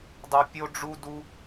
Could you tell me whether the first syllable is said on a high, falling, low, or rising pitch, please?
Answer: low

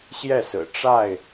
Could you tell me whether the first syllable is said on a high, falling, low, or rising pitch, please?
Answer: falling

